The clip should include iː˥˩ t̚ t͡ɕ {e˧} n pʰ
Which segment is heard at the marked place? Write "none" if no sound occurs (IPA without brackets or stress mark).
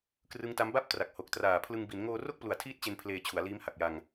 e˧